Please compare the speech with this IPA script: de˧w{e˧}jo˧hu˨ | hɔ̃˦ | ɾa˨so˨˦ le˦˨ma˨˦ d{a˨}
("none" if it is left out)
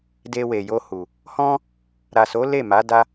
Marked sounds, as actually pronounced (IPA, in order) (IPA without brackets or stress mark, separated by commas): e˨, a˧